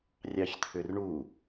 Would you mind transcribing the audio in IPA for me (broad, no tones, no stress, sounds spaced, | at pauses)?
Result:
rʲ ɑ ç t̪ʰ ʏ r ɳ u